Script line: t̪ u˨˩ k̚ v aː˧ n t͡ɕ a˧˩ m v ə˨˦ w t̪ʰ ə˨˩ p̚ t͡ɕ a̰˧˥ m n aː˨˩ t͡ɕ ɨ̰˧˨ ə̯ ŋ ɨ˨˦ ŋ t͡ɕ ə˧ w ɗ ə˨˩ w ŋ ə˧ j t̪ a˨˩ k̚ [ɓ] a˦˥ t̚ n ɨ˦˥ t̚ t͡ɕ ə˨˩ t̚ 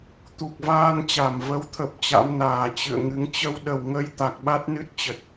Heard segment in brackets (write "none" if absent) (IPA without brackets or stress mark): ɓ